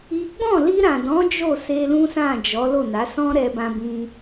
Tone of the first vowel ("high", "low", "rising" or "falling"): high